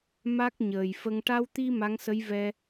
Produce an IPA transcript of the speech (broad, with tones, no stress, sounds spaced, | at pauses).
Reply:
m a˦˥ k̚ ɲ əː˨˩ j f ə˧ ŋ ʈ a˧ w t̪ i˧ m a˧˥ ŋ s ə˧˥ j v ɛ˧